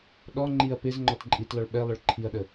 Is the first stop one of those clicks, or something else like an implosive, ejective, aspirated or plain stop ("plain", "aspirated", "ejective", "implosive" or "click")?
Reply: implosive